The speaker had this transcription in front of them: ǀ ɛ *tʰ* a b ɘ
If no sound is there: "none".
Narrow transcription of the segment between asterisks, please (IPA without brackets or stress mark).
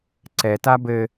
t